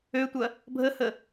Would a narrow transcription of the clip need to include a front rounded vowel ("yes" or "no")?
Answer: yes